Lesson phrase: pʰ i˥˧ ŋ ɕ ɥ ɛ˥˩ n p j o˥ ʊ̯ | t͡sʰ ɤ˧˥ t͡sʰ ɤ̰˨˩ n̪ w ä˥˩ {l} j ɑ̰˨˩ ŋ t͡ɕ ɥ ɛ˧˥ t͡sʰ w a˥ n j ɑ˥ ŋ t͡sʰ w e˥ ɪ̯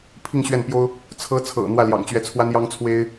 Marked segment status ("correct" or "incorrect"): correct